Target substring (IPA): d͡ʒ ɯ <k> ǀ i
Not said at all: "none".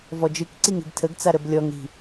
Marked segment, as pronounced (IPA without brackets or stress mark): k